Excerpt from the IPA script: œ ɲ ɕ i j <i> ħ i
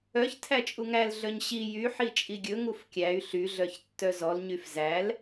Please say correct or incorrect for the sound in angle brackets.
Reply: incorrect